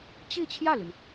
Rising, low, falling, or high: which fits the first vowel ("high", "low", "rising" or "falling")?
falling